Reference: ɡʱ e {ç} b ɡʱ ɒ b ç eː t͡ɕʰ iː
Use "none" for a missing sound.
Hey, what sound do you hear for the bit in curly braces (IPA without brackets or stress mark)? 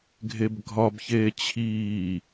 none